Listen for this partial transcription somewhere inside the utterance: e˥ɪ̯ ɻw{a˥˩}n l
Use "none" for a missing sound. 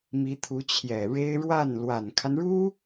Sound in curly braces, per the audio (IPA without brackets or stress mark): a˥˩